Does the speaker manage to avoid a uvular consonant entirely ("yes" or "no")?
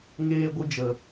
yes